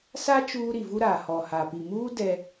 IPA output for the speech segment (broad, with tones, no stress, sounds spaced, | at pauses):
s a˦ t͡ʃ uː˦ ɾ i˨ v u˦ ɾ aː˨ h ɔ˨ h a˨ p i˨ m uː˦ d ɛ˦